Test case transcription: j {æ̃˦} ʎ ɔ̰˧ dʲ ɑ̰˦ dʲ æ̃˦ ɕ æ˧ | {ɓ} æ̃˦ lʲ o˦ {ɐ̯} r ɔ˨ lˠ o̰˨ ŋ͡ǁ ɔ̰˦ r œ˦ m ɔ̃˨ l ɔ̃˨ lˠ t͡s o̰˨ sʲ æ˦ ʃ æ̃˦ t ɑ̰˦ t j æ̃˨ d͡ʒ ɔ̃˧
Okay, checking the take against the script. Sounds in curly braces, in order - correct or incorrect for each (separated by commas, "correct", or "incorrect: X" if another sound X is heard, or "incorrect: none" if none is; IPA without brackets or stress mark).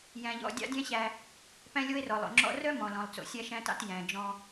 incorrect: æ̃˧, incorrect: p, incorrect: e̯